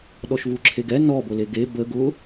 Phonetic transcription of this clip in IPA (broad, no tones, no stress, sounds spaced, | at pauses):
ɗ ɔ ʃ v u ǁʰ e ɡ ɛ n ɔ b o l e ɡ e b ə ɡ ʊ